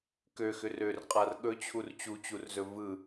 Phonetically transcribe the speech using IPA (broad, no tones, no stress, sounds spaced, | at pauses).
k ø x ʏ r ø r qʼ a r ɠ ɵ t͡ɕʰ u r t͡ɕ u t͡ɕ u r z ɵ v ɯ